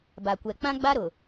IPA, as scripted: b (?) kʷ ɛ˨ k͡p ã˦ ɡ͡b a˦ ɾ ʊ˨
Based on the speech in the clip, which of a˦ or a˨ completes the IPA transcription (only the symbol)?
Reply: a˨